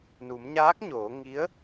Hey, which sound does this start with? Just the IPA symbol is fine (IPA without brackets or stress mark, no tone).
n